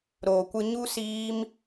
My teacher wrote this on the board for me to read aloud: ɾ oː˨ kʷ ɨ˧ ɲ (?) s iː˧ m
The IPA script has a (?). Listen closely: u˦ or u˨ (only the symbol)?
u˦